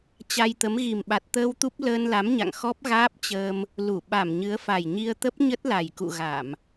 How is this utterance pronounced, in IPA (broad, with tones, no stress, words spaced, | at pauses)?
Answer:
t͡ɕa˧jt̪ə˨˦m ɣi˨˩mɓa˨˩t̚t̪əː˧w t̪u˦˥p̚ ləː˧nla˨˦m ɲa̰˧˨ŋxɔ˦˥p̚ ɣaː˦˥p̚t͡ɕəː˧m | lu˧˩ ɓa˧˩mɲɨ˨˦ə̯ fa˨˩jɲi˧ə̯ t̪ə˦˥p̚ɲə˦˥t̚ la˨˩jkṵ˧˨ ɣa˧˩˨m